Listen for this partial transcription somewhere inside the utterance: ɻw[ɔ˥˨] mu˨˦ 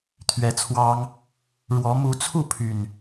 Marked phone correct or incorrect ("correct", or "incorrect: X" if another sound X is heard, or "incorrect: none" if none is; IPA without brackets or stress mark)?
incorrect: ɔ˨˦